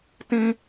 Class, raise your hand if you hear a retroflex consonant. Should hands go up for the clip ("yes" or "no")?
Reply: no